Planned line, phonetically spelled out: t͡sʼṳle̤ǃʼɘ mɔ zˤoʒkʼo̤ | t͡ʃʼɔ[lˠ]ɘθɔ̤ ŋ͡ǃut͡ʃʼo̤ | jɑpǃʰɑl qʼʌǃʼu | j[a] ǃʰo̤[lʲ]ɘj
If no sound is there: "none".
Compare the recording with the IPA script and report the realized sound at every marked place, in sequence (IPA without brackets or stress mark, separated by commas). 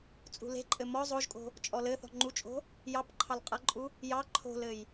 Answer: l, ɑ, l